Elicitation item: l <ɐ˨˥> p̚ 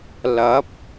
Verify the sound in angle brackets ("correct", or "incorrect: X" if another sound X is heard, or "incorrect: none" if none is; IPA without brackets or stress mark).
correct